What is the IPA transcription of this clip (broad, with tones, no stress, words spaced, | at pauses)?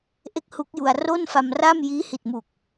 ʔe˥˩k̚hu˦˥k̚ju˧a̯ ro˥˩nfa˧mra˥˩m jiː˦˥hi˨˩t̚mu˨˩k̚